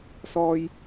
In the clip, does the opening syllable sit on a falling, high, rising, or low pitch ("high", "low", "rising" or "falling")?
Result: high